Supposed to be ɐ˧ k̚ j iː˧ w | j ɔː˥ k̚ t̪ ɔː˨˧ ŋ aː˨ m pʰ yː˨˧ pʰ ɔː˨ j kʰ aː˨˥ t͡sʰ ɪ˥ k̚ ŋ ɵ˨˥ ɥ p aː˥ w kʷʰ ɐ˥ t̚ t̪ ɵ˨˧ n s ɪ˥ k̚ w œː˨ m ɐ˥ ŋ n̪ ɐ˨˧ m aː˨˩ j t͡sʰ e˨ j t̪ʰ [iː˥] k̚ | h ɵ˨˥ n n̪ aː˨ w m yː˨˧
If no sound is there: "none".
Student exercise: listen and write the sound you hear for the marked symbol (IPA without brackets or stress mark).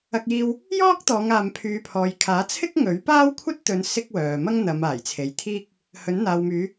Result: iː˥